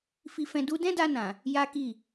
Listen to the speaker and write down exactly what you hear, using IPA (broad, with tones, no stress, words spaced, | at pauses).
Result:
fi˧fɛ̃˧ du˦ dɛ̃˦da˧nã˨ | ja˦ki˦˨